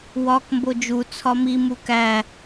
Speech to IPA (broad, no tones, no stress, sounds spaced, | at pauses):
w ɒ k m b o d͡ʒ u t͡sʰ ɒ m i m u k æ